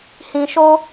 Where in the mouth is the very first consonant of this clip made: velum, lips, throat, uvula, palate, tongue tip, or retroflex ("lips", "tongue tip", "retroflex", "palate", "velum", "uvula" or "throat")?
throat